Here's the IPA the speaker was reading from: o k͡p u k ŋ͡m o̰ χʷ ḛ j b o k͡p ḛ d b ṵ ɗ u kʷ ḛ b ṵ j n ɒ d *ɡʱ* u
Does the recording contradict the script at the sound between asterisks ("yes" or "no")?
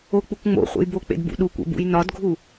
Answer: no